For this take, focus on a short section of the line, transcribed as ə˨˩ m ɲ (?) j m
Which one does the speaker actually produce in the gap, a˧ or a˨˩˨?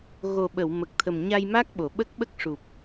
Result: a˧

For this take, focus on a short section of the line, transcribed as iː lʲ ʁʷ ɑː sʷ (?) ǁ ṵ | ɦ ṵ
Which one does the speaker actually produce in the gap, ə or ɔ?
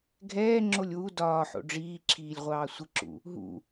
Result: ə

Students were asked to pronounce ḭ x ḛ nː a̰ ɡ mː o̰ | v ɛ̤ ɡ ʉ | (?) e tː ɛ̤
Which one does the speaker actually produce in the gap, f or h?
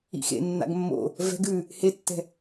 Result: h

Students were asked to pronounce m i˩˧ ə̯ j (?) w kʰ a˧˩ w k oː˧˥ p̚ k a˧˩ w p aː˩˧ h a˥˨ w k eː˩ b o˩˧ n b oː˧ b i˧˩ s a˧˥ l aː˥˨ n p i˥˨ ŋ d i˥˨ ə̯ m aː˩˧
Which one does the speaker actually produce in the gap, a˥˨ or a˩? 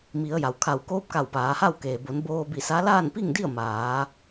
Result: a˩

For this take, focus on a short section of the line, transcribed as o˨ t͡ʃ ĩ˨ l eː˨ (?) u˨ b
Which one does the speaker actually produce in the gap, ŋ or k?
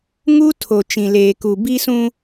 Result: k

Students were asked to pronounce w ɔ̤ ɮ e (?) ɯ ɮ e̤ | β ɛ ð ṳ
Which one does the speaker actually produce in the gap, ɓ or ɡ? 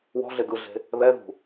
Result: ɡ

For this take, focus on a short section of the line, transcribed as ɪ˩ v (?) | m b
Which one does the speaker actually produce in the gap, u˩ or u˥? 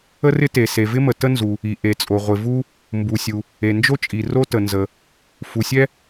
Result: u˥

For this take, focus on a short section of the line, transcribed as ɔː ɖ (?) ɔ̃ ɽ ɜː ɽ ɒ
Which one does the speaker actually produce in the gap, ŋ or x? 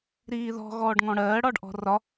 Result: ŋ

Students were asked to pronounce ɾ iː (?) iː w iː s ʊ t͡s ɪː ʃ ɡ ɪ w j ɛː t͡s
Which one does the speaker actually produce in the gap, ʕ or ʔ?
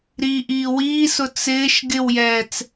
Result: ʔ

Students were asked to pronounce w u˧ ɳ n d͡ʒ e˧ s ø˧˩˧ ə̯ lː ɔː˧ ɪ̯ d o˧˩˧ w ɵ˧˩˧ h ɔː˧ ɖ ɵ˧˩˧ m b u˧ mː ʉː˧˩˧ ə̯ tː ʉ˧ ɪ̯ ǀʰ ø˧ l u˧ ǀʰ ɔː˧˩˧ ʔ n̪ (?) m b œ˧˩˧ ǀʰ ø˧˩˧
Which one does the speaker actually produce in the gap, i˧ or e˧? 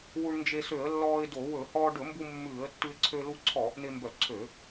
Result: e˧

